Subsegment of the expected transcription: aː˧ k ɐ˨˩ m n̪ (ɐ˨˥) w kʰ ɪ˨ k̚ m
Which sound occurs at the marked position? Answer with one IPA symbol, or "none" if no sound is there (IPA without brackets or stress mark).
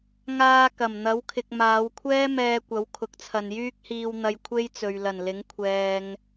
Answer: ɐ˨˥